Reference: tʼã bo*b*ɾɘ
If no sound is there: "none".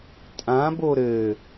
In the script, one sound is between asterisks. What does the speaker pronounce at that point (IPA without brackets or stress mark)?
none